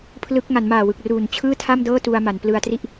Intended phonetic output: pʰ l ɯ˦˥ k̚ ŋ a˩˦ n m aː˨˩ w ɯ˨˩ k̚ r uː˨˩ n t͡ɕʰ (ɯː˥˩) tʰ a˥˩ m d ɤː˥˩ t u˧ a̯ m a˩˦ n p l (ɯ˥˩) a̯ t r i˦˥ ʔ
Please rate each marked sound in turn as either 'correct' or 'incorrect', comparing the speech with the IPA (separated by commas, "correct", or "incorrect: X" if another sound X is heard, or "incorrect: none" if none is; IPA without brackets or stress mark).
correct, incorrect: ɯ˧